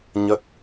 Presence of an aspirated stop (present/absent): absent